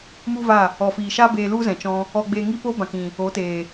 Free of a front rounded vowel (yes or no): yes